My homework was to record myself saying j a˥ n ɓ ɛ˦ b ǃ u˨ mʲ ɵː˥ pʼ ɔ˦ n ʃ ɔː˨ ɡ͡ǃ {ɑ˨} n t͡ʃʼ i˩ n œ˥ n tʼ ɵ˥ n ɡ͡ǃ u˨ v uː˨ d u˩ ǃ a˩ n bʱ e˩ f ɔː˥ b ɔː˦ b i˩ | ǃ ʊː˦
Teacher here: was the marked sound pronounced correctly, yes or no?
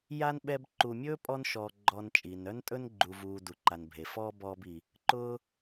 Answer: no